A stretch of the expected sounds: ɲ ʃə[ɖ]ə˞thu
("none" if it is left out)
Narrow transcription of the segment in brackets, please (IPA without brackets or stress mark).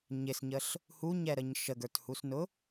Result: ɡ